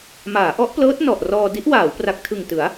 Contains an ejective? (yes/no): no